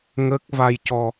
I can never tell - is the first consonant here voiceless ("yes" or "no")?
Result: no